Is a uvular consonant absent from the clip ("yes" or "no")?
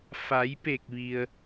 yes